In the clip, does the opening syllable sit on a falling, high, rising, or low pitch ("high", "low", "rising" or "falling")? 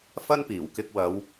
high